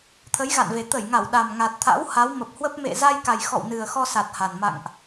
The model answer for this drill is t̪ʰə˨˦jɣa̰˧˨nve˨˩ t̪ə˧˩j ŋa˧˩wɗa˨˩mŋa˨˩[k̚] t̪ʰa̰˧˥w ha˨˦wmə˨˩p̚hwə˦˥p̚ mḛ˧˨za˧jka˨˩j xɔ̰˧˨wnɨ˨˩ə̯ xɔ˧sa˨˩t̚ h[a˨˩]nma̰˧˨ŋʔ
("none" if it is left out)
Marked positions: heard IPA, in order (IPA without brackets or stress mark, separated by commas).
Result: t̚, a˨˩